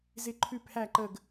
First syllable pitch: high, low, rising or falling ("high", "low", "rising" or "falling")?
falling